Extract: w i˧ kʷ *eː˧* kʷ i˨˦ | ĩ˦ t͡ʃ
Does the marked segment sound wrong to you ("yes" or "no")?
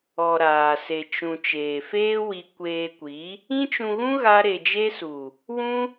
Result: no